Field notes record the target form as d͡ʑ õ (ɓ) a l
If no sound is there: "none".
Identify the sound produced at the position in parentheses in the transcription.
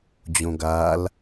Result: ɡ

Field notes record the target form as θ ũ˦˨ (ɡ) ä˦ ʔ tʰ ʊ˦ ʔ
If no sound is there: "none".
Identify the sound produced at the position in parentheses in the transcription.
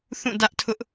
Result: d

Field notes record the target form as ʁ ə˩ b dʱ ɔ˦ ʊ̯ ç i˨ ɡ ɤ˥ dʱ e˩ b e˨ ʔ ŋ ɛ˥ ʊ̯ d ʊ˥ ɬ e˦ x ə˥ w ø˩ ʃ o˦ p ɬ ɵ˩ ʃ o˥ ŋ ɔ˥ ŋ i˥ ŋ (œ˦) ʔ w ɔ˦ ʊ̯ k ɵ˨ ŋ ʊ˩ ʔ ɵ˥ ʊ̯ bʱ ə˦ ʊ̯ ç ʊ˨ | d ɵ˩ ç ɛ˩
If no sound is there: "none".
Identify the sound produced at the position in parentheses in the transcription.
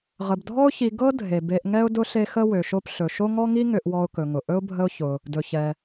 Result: ø˦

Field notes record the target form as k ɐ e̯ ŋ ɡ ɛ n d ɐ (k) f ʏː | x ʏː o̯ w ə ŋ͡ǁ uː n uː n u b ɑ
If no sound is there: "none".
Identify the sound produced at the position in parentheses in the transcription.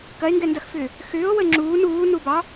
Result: x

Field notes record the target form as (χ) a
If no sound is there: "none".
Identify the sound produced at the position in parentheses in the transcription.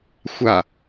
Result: xʷ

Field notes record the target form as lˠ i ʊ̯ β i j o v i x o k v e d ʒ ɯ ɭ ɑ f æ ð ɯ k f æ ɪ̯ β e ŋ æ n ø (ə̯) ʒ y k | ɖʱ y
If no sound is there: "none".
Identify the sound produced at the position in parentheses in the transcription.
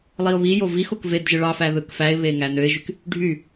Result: ɪ̯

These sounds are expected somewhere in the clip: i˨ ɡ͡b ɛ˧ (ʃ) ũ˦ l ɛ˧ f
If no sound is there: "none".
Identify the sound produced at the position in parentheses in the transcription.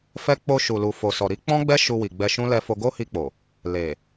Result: ʃ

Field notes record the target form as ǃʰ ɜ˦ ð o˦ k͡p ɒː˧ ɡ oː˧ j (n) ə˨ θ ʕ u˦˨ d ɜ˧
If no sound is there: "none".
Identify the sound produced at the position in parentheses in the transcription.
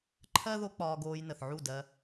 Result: n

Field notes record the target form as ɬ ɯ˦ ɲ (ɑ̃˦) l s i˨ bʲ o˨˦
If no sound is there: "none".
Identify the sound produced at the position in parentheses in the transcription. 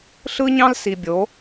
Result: ɑ̃˦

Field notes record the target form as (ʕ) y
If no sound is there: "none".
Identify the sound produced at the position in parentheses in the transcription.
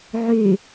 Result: ʕ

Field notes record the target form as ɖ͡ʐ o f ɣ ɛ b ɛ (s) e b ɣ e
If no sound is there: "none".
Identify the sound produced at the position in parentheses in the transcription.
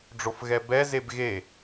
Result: z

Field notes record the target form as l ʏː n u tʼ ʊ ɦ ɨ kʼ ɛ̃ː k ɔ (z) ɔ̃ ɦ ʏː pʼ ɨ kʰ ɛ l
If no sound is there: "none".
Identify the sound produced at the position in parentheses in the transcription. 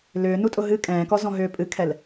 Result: z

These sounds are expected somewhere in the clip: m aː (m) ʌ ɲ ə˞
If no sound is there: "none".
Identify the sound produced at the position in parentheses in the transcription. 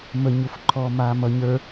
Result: m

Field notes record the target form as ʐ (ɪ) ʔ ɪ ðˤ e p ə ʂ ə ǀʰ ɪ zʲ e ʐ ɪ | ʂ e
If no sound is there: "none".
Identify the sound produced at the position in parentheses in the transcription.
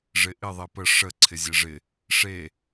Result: ɪ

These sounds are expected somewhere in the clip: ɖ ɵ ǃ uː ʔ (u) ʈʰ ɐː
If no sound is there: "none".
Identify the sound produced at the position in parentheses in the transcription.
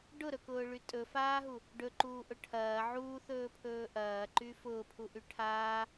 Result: ʊ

